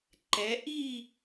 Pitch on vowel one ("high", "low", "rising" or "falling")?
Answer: rising